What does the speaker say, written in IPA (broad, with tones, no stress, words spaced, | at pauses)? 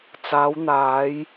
t͡saː˨˧wn̪aː˨˧j